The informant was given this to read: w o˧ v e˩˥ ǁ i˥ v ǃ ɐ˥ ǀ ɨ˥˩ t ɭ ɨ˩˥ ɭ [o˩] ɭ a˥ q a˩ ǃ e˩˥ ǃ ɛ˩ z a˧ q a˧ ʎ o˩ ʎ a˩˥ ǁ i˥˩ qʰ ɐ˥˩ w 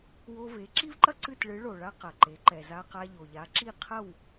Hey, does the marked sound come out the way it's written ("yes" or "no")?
yes